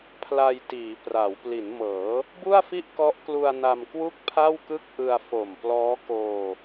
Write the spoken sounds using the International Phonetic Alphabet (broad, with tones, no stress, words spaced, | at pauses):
pʰla˧jtiː˩˦pra˩˦w pli˩˦nmɤː˩˦ | bu˥˩a̯fi˥˩ʔkɔ˦˥ʔklu˧a̯ na˧mkwu˥˩k̚pʰa˥˩wkɯ˥˩k̚ ʔɯ˧a̯fo˨˩mplɔː˦˥ koː˧